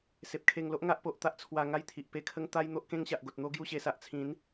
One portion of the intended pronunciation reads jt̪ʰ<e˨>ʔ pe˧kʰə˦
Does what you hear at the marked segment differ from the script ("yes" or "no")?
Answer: yes